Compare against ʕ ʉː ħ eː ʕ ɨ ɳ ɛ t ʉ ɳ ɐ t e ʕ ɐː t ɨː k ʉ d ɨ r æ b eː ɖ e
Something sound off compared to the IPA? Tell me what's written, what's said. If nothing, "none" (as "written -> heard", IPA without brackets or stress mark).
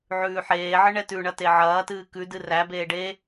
none